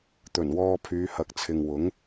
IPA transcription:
t̪ ɵ˨˩ n w ɔː˧ pʰ yː˨˧ h ɐ˨˥ k̚ t͡sʰ ɪ˨ ŋ w ʊ˨˥ ŋ

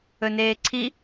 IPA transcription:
ɵ n eː ǀʰ i

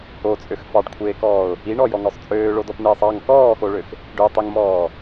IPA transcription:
o t͡sʼ ø x f ɑ ɖ kʷʰ eː k ɔː ʊ̯ | i ɳ ɔ j ɔ ŋ ɔ sˤ t͡sʼ øː ɭ o d ɔ p n eː sˤ ɑ ŋ k ɔː x o ɭ ø x | ɖ ø tˤ i ŋ m ɔː

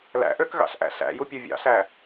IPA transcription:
l æ̰ ʔ ø k ɣ ɑ̰ ɬ ʔ æ̰ ɬ æ̰ j u pʲ u vʲ ɑ̰ ɬ æ

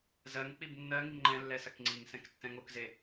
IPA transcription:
z ɜ ŋ k͡p i b nː ɜ ŋ i ŋ ŋ͡ǃ ɛ̃ lː ɛ s ɐ k ŋ͡ǀ i ŋ s ɛ̃ k tː ɛ̃ ŋ o k z e

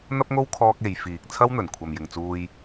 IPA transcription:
n̪ ɐ˥ p̚ ŋ o˥ w kʰ ɔː˥ k̚ e˨˧ j f iː˨ k̚ t͡sʰ ɐ˥ w n̪ ɵ˨˩ n kʷʰ ɐ˨ m j ɪ˨ ŋ t͡s uː˧ j

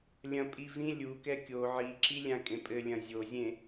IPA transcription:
lʲ ɐ̃ pʼ i v ĩ lʲ u k ɛ kʲ o ʕ i ǁ i lʲ ã kʼ ẽ pʼ ɘ lʲ ɐ̃ zʲ o zʲ ẽ

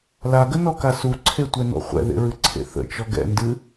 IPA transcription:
l a ɡ ə n ɔ k a s u ǀʰ e tʷ ɛ n ɔ̰ χʷ ɛ̰ ð ḛ ɹ ɨ ǀʰ ḛ θ ə̰ t͡ʃ ɔ ɡ ɛ̰ n d ɨ

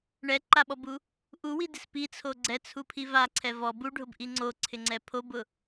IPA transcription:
ɳ ɛ ǃ a ɓ ɔ b u | ʔ u w i d ɪ s p i t͡sʰ o ɡ͡ǀ ɛ t͡sʰ u pʰ i v a ǀʰ ɛ v ɔ b u ɖʱ ʊ b ʔ i ŋ͡ǀ o ǀʰ ɪ ŋ͡ǀ ɛ pʰ o b ʊ

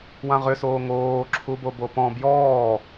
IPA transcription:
w ã ʁ ʏ s oː ŋ oː ǁʰ u b o b o p ɔ̃ b j ɔː

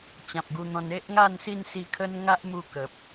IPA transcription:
t͡ɕ ã˨ p̚ ɡ u˧ n̪ ɔ̃˧ n e˦ ʔ ŋ a˥˧ n s i˥˧ n s i˧ kʰ ə˦ n ŋ a˦ ʔ m u˧ k ə˨ p̚

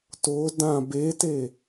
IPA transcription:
t o d ã b e t e

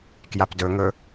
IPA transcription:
k j a p d ɵ ŋ ɵ

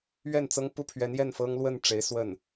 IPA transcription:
ɥ ɛ˥˩ n t͡s ɤ˥ ŋ p u˥˩ pʰ ɥ ɛ˧˥ n j ɛ˥˩ n f ɤ˥ ŋ l w ə˥˩ n ʈ͡ʂ e˧˥ ɪ̯ s w ə˥˩ n

